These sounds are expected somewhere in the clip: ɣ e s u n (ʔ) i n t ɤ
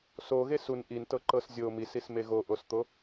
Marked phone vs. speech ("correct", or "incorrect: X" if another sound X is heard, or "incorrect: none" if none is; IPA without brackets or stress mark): correct